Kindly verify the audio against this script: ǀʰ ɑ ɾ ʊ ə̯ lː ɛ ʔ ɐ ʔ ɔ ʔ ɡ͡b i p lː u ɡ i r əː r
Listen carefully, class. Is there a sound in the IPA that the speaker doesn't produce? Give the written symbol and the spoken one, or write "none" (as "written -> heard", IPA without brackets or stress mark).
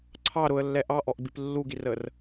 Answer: ɐ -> ɑ